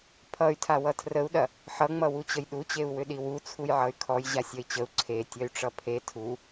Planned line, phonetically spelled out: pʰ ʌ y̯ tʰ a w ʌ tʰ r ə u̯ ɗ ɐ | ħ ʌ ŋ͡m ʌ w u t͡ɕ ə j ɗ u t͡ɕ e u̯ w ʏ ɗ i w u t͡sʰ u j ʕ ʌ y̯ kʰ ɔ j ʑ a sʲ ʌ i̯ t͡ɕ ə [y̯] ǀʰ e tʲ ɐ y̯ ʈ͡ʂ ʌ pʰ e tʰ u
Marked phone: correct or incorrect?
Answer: incorrect